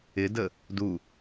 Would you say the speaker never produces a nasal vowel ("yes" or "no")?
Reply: yes